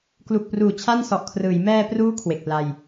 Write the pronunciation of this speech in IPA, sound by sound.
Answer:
k l u˨˩ k̚ p r uː˨˩ t͡ɕʰ a˥˩ n s ɔ˨˩ ʔ kʰ r ɯː˩˦ j m ɛː˧ p r uː˦˥ kʰ w e˨˩ k̚ p l a˧ j

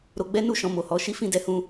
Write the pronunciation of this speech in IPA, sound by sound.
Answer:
ɾ o˧ ɡ͡b ɛ˦ n u˦ ʃ ɔ̃˧ m o˨ h ɔ˨˦ ʃ i˦ f ĩ˦ d ɛ˧ h ũ˧

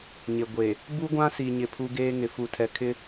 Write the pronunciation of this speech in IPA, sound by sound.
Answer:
ɲ ɪ˨ ɡʷ e˨ | b u˦ ɡʷ ã˦ s i˨ ɲ ɪ˨ pʰ u˦ ɡ eː˦ ŋ ɪ˨ f u˨ tʰ ɛ˨ kʰ ɪ˦

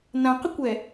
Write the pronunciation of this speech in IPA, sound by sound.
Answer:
n ã q ə kʷ ɛ

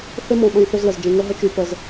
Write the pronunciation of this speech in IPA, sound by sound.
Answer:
θ e˦ m ɔ̃˨ ɓ ə̃˨ j θ ɵ˦ z l ə˨ z d͡ʒ ẽ˨ ŋ ə˦ ɦ ə˦ t͡ʃ y˨ p ə˨ z

